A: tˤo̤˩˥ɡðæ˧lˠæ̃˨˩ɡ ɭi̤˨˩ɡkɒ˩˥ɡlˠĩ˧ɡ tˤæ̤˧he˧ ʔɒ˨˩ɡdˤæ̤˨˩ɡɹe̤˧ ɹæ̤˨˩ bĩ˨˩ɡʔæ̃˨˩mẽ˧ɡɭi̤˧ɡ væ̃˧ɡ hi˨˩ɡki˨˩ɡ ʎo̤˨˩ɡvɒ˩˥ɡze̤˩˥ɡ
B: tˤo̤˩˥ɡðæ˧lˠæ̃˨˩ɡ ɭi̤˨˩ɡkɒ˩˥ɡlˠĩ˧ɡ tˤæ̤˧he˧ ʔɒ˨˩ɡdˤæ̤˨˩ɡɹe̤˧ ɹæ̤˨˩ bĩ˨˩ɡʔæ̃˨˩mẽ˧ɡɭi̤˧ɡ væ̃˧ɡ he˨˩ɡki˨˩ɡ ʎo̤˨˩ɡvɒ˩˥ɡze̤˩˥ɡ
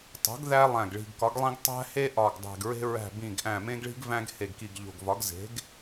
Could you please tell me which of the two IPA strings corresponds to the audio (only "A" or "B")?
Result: B